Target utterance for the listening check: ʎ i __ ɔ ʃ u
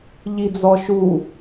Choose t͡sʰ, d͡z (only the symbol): d͡z